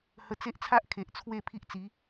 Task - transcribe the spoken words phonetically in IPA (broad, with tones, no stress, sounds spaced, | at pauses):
h ə˦ t͡s e˦ ʔ t͡sʰ a˦ ʔ kʰ e˨ ʔ t͡sʰ w e˥˧ pʰ i˦ ʔ t͡s i˨˦